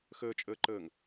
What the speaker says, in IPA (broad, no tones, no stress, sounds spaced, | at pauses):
x əː t͡ʃʼ əː ǃ əː ŋ